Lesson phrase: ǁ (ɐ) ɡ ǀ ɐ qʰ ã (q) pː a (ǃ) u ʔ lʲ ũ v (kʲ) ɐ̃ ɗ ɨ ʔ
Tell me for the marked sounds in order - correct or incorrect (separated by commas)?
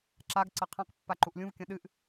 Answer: incorrect, correct, correct, correct